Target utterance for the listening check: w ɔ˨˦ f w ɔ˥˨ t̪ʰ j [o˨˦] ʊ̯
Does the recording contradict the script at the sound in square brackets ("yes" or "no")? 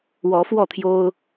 yes